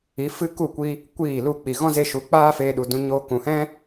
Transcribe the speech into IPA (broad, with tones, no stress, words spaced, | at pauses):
i˨˦fɨ˦ ku˦˨kʷi˧ | kʷiː˦˨lu˦˨ k͡pi˨ ɣɔ̃˦ze˧ʃu˨˦ k͡paː˦feː˧ ɗu˧dũ˦ɲoː˦ kũ˨hɛ̃˦